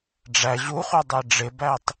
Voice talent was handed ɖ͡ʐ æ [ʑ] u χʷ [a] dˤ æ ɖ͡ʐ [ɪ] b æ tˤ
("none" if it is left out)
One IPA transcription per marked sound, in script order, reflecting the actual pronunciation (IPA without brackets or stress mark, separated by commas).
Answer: ʑ, a, ɪ